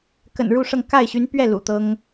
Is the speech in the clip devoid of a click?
yes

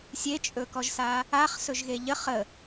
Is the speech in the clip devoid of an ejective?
no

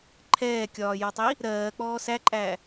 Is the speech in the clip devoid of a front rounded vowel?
yes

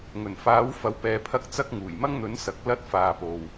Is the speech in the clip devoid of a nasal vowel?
yes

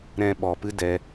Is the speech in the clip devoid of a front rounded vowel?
yes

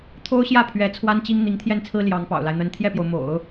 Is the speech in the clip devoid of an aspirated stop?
no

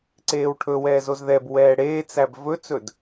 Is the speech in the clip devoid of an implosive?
yes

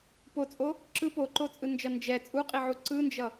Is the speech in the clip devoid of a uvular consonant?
no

